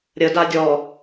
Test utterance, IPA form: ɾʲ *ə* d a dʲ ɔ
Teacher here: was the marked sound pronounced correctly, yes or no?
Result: yes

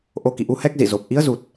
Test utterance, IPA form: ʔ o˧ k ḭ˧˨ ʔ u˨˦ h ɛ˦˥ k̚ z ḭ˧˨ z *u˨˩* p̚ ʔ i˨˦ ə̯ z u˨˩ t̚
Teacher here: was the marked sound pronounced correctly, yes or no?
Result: no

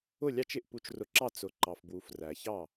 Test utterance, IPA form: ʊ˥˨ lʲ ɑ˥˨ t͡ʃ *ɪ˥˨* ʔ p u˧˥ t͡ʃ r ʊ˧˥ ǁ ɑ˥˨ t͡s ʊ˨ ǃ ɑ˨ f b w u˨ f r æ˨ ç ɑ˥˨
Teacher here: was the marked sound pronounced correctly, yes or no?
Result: yes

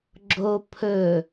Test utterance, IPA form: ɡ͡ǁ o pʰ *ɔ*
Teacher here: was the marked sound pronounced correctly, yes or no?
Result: no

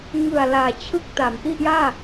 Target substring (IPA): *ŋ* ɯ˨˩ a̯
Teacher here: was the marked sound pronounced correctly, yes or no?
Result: yes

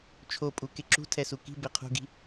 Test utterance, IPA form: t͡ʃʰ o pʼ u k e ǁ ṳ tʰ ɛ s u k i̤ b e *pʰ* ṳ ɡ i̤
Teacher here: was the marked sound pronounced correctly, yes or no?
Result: no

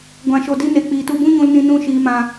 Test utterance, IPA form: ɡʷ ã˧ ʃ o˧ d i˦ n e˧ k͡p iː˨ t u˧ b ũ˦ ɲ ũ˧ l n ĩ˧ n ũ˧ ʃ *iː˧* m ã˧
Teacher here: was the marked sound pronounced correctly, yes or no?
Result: yes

